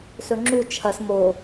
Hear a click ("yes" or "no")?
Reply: yes